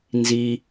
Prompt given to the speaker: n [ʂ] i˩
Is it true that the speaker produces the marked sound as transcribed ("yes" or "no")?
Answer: no